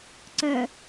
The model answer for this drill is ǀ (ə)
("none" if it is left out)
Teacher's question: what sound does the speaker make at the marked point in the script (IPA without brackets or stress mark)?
œ